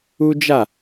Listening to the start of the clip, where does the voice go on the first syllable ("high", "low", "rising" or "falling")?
high